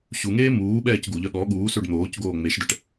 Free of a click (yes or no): yes